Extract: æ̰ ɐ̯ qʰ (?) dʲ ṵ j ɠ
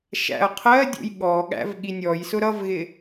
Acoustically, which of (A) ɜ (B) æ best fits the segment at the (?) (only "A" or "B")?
A